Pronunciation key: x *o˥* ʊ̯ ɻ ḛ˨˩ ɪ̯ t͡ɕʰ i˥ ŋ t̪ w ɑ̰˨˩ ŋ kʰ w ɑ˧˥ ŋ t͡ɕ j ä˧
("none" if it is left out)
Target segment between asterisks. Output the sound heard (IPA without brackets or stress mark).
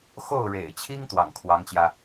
o˥˩